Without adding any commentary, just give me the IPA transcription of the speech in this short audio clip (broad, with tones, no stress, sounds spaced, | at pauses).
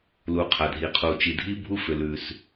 l u˩ qʰ a˩ dʱ i˩ qʰ u˩ t͡ʃ i˩ dʱ i˥ bʱ u˥ f ʏ˩ l ʉ˩ s